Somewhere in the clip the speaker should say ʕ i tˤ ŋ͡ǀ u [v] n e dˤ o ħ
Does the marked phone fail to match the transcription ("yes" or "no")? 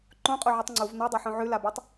no